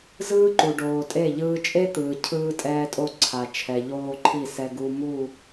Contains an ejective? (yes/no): yes